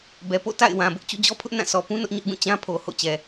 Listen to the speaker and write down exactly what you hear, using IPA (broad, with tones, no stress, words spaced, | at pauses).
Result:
bɛ˨po̰˦˨ta̰˦˨ɪ̯ wã˨bʊ˦ʔ t͡ɕṵ˦˨d͡ʑɔ˦pʰʊ˦ʔ nã˦˨ sɔ˨pũ˦ nʊ˦ʔɲʊ˦ʔɡũ˦˨ t͡ɕã˦pʰo˨ ho̰˦˨t͡ɕɛ˨